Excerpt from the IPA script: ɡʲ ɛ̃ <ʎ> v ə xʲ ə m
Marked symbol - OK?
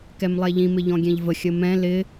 yes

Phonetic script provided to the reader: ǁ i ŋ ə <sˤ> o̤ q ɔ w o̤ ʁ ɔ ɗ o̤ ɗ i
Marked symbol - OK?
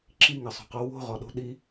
yes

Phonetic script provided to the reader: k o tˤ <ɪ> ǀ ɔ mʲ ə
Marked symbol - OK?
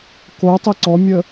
yes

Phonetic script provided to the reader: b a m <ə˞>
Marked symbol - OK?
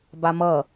no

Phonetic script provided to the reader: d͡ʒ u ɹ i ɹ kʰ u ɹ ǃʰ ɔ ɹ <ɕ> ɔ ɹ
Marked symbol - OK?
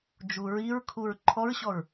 yes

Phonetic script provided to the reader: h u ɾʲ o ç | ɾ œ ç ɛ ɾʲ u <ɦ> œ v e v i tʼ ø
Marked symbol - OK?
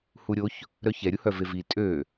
no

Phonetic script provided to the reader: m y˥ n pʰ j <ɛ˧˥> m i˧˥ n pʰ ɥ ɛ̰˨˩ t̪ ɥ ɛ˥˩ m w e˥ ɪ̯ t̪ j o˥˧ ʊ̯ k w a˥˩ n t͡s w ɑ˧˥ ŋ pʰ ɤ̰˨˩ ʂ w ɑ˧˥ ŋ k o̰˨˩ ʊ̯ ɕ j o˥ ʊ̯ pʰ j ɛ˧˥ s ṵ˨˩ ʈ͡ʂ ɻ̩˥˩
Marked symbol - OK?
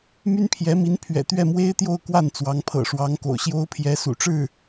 yes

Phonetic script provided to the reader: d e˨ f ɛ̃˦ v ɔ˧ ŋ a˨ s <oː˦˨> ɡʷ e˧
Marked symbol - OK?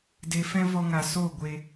yes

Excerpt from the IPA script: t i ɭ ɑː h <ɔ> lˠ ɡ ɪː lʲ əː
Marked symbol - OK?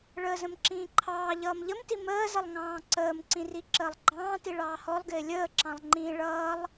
yes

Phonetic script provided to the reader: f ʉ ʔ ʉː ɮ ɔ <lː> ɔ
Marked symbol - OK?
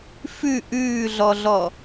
no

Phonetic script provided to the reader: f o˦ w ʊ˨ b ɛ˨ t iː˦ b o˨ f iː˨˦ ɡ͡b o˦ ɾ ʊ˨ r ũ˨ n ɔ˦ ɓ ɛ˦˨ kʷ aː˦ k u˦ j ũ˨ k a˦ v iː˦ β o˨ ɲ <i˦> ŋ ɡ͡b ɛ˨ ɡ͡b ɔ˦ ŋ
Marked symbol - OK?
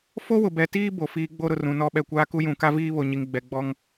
no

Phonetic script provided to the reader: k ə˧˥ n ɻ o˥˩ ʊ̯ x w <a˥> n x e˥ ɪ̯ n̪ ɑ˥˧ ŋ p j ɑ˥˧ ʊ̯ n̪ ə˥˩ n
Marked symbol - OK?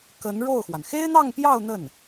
no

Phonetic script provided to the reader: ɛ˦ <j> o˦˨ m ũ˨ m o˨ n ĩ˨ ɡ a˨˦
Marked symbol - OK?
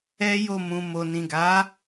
yes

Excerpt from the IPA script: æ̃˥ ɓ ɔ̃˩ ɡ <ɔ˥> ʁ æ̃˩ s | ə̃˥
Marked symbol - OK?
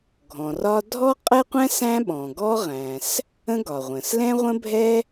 yes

